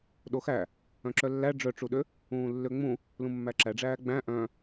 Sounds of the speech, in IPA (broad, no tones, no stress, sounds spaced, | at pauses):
ɗ o x æ | œ̃ ǁ œ lː æ ɖ͡ʐ œ ʈ͡ʂ u ɗ ø | ũː lː ø ŋ͡m ũ | l ũ mː æ ǁ æ ɖ͡ʐ æː ɡ͡b æ̃ ʔ œ̃